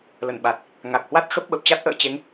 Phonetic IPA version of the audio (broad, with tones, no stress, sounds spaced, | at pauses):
l ə˧˩ n ɓ a˨˩ t̚ | ŋ a˨˩ k̚ h w a˦˥ t̚ x ə˦˥ p̚ ɓ ə˨˩ p̚ t͡ɕ a˦˥ t̚ ʔ ə̰ː˧˨ t͡ɕ e˨˦ ŋ